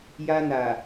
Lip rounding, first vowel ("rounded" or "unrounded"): unrounded